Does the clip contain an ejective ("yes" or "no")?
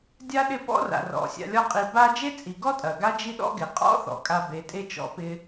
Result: yes